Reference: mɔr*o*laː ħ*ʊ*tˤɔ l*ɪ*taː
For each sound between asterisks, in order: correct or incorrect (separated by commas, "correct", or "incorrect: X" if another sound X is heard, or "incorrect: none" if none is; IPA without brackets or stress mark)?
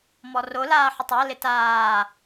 correct, correct, correct